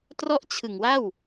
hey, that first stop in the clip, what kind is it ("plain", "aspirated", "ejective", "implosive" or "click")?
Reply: plain